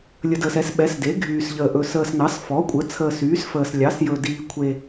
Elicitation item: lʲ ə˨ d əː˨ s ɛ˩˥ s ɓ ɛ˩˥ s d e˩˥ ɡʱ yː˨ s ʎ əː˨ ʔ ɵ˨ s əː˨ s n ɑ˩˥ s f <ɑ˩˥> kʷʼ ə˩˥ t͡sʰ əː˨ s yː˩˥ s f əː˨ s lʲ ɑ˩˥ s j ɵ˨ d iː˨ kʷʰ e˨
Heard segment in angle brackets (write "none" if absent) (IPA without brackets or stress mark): ɔ˩˥